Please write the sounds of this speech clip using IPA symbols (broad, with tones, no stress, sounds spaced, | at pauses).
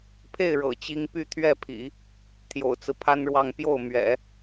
pʰ e˥˩ ɪ̯ ɻ ɤ̰˨˩ t͡ɕ i˥ ŋ p y˥˧ t̪ʰ ɥ ɛ˥˩ pʰ ḭ˨˩˦ | t̪ʰ j o̰˨˩ ʊ̯ t͡s ɹ̩˦ pʰ a˥ n ɻ w ɑ˥˧ ŋ p j o˥˩ ʊ̯ m ɥ ɛ̰˨˩˦